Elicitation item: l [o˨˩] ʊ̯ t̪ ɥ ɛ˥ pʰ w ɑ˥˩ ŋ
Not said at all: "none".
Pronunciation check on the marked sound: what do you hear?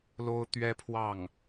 o˥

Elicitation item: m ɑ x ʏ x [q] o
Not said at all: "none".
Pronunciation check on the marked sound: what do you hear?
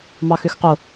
q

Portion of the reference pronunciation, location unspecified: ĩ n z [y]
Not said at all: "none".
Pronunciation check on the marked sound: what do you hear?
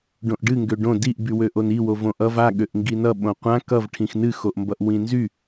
y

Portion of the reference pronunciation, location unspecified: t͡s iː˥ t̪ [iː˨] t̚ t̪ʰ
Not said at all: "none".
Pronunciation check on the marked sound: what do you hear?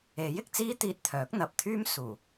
iː˧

